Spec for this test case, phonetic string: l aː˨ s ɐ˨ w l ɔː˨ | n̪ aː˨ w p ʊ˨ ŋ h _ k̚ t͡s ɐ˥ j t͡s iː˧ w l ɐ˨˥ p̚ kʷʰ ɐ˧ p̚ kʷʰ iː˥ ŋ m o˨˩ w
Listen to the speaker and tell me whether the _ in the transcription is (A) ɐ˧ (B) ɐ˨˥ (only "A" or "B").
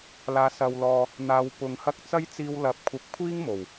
A